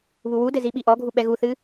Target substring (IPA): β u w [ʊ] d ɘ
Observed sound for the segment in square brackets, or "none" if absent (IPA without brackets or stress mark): u